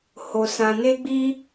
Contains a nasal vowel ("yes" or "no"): yes